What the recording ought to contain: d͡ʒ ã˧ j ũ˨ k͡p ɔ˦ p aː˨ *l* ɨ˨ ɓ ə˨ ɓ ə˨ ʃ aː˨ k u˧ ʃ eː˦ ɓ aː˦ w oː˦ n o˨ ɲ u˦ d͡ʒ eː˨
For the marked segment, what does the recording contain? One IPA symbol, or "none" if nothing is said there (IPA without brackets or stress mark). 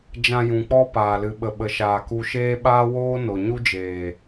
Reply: l